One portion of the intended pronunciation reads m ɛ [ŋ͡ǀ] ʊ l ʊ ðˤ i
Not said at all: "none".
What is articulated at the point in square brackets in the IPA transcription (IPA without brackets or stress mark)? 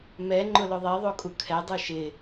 ŋ͡ǃ